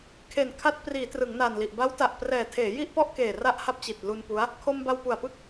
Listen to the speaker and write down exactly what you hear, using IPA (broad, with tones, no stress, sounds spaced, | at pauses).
kʰ e˨˩ n kʰ a˦˥ t̚ p r iː˩˦ t r ɯ˩˦ ŋ n aː˨˩ n l i˨˩ ʔ b a˦˥ w t a˨˩ ʔ p r ɛː˨˩ tʰ eː˩˦ j i˥˩ ʔ p ɔ˥˩ ʔ k eː˨˩ r a˥˩ ʔ h a˥˩ p̚ t͡ɕ i˨˩ t̚ l u˧ n p u˦˥ a̯ | kʰ o˧ m b a˧ w p u˨˩ a̯ p ɯ˥˩ k̚